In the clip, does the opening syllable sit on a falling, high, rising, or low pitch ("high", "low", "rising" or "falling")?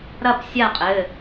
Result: falling